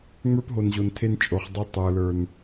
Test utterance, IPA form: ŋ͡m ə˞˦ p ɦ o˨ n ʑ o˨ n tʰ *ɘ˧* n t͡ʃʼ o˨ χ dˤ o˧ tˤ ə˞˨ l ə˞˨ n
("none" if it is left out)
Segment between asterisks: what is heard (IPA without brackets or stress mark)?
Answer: e˧